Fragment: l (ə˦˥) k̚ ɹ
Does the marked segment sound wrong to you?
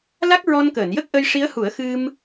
yes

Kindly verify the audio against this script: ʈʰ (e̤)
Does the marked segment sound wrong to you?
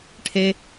yes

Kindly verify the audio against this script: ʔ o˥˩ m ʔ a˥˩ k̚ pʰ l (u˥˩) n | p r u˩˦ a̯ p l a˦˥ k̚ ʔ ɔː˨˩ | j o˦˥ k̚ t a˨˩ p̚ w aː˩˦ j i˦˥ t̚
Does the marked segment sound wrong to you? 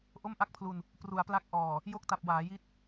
yes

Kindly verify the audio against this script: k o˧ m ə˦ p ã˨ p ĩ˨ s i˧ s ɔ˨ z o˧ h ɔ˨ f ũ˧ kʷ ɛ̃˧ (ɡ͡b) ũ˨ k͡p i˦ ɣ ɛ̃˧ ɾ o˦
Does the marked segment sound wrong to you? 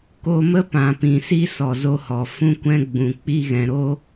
no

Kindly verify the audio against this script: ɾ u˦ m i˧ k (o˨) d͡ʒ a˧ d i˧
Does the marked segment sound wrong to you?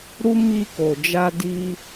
no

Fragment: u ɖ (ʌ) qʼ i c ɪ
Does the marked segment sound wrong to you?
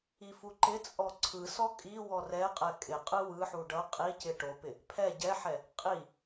no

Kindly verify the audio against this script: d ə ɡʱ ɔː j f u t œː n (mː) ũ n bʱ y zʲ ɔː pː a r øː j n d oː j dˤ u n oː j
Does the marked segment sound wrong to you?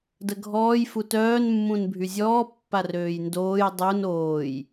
no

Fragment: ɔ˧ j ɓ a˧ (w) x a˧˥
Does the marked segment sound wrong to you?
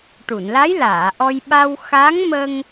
no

